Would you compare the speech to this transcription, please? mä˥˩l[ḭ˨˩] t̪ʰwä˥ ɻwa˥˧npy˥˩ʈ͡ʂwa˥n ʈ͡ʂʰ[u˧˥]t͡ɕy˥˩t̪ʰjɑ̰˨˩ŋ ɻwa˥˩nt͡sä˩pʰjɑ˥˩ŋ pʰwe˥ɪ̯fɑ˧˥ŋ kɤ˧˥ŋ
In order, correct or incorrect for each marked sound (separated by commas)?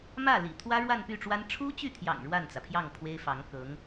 correct, incorrect